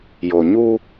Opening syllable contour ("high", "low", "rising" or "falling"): low